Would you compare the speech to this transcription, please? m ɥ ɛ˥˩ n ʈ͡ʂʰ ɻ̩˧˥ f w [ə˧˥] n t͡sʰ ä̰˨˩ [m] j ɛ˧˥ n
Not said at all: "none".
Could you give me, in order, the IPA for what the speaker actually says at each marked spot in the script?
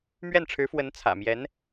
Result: ə˧˥, m

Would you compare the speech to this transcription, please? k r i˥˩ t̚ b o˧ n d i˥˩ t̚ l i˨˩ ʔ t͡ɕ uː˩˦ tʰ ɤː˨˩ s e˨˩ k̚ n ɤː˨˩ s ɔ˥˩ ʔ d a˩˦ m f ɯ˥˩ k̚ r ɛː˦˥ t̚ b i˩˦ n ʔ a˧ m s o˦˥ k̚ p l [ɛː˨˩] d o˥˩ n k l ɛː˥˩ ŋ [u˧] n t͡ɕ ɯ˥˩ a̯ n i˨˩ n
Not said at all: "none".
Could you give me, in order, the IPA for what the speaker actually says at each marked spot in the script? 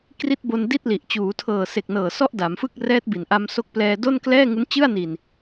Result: ɛː˧, u˦˥

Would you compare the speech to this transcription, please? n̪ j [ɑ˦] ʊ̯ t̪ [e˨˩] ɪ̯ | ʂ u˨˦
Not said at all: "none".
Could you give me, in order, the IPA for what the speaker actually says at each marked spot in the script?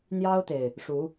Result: ɑ˦, e˨˩

